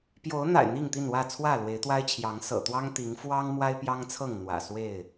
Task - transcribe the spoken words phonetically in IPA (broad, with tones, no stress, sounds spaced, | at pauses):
p j o˨˦ ʊ̯ n̪ a̰˨˩ ɪ̯ n̪ i˥˨ ŋ t̪ i˥˨ n w ä˥˨ t͡sʰ w ä˥˨ l w e˨˦ ɪ̯ t̪ w a˦ ɪ̯ t͡ɕʰ j ɑ˨˦ ŋ s ɤ̰˨˩ t̪ w ɑ˦ ŋ t̪ i˨˦ ŋ f w ɑ˦ ŋ m w a˦ ɪ̯ p j ɑ˦ ŋ t͡sʰ ɤ˥˨ ŋ n̪ w ä̰˨˩ s w e˥˨ ɪ̯